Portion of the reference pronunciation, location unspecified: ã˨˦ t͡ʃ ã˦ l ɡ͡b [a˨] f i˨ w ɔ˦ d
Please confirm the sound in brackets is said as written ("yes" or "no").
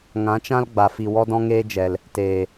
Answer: yes